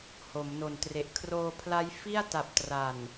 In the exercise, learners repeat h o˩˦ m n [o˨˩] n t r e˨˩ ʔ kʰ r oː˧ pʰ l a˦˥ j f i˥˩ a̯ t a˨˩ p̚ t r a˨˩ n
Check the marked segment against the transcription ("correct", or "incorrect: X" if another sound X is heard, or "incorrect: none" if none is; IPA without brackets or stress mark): correct